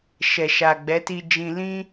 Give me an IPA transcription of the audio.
ʃ ɛ˨ ʃ a˨ ɡ͡b ɛ˨˦ t i˧ d͡ʒ ĩ˧ l ĩ˦

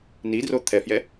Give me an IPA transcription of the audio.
n i d r o t̪ʰ ɛ f j ɛ

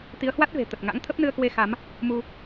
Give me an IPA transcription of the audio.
t̪ i˨˦ ə̯ h w a˦˥ t̚ v e̤˨˩ t̪ ə˨˩ t̚ ŋ a̰˧˥ ŋ t̪ʰ ə˦˥ p̚ n ɨ˧ ə̯ k w e˧ x a˨˦ m | m u˧

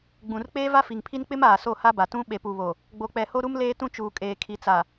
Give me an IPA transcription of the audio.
ɡ͡b ũ˨ r k͡p eː˦ v a˦ f i˨ ŋ pʰ i˦ n k͡p ɪ˦ m aː˨ s o˦˨ h a˦ b a˨ t ũ˦ ɓ e˨ p u˨ β o˨ | ɡ͡b o˨ k͡p ɛ˨ h o˦ ɾ u˦ m l eː˦ t ũ˦ t͡ʃ uː˨ kʼ eː˨ kʰ i˨ t͡s a˨

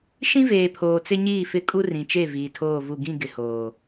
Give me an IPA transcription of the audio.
ʃ ĩ˦ v eː˨ pʰ oː˨ t͡s ɪ˦ ɲ iː˦˨ f ɪ˦˨ kʼ u˦ r ĩ˨ t͡ʃ e˦˨ v iː˨ tʰ oː˦˨ v u˦˨ ɡ ĩ˦˨ ɡ ɪ˨ h oː˨

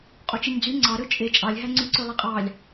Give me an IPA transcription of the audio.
qʼ o t͡ʃ i ɲ d͡z y ŋ͡ǀ ɑ ɾ ø t͡ʃʼ e t͡ʃʼ ɑ lʲ ɦ æ ŋ͡ǀ y ǀ ø lˠ i qʼ ɑ lʲ

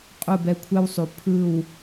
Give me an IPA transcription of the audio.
qʼ u˦˨ b ɛ˧ kʷʰ ɛ˦ w sˤ u˨ pʰ ɯ˦˨ w

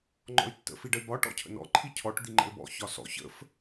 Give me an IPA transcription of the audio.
ŋ͡ǃ ɔ̰ y̯ tː ə̰ f i ɖ ə y̯ b ɒ ʈ ɔ̰ cʰ ə̰ n ɔ̰ ǃʰ i cʰ ɔ ʈ d̪ i ŋ͡ǃ ə̰ l b ɔ̰ ç ɒ s ɔ̰ ç ə̰ f

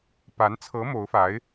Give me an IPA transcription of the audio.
p a˧˥ n t͡sʰ ɤ˧˥ m o˧˥ ʊ̯ f a˧˥ ɪ̯

